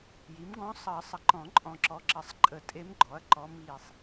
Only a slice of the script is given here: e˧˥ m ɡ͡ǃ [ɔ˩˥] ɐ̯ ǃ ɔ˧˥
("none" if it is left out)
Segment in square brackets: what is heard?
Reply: ɔ˩˥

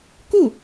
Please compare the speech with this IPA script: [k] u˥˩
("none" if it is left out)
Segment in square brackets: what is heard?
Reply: k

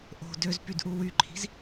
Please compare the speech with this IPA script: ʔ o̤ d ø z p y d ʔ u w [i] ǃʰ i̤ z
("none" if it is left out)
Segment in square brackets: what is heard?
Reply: y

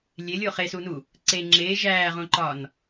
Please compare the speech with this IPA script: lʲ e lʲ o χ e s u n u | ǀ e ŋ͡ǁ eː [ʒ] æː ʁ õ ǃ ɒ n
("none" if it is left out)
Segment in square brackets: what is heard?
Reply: ʒ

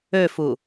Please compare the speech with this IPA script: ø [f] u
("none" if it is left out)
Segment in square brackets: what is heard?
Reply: f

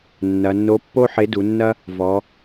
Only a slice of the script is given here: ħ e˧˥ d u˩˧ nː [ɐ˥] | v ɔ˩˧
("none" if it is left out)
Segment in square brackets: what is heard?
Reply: ɐ˥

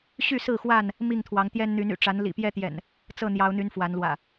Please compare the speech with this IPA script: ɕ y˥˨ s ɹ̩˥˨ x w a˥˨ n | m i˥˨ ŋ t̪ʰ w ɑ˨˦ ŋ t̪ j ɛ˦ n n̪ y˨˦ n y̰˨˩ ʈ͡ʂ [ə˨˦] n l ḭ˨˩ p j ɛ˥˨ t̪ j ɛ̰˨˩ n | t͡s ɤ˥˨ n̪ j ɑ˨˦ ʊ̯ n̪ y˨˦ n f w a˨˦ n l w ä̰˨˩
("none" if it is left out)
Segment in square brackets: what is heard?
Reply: a˨˦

